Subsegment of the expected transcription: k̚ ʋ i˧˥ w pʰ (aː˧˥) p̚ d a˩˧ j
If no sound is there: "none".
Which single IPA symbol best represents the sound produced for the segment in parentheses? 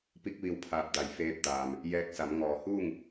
aː˧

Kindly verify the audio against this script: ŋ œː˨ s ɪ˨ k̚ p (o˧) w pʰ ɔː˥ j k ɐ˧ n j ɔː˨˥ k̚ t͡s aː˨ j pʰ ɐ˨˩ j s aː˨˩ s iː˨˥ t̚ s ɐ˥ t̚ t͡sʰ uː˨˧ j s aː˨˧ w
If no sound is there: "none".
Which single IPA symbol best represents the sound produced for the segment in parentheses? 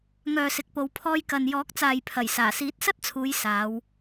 o˨˧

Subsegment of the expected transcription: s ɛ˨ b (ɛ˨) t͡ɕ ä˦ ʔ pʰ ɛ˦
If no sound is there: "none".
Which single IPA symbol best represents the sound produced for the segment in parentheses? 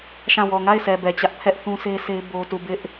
ɛ˨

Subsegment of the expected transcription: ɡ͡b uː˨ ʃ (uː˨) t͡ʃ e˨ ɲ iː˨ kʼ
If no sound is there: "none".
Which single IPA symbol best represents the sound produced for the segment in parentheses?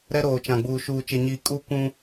uː˨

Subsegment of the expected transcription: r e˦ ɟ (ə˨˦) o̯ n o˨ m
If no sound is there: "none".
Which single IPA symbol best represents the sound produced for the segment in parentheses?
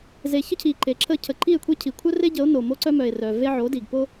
ə˨˦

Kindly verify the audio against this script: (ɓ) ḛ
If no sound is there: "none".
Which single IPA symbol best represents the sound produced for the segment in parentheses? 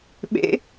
ɓ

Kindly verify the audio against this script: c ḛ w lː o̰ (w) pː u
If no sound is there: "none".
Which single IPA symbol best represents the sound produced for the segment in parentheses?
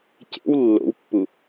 w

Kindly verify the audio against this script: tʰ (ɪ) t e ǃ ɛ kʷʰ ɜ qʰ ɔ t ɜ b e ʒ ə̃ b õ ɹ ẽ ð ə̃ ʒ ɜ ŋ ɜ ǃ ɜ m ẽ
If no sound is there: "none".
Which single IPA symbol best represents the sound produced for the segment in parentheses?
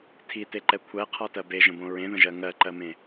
i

